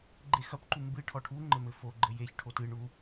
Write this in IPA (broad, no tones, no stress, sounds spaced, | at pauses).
ɡ͡ǃ e x ɐ p ǃ u m b ɨ ʈʰ ɔ ʈʰ u ŋ͡ǃ ɘ m ɘ f o ɡ͡ǃ ɘ j e ç ʈʰ o t ɨ ɳ u